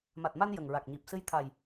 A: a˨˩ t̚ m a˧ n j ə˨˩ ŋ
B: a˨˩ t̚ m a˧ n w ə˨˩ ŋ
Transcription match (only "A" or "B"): A